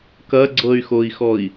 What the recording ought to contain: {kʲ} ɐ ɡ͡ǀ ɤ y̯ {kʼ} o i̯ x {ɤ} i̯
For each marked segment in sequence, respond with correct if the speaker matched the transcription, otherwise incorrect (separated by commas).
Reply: incorrect, incorrect, incorrect